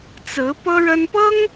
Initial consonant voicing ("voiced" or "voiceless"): voiceless